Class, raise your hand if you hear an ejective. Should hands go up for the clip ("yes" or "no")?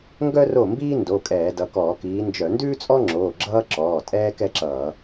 yes